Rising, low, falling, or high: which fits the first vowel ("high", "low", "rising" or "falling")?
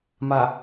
low